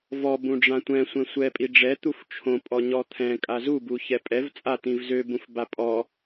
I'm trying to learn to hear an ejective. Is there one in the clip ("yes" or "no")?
yes